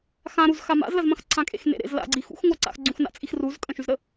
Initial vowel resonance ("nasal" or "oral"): nasal